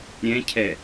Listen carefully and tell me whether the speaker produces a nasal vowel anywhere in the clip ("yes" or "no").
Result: yes